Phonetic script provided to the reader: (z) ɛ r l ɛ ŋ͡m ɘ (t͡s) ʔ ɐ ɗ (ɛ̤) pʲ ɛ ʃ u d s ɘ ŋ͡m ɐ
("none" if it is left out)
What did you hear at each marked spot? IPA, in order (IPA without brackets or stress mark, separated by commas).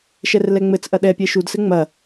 ʃ, t͡s, ɛ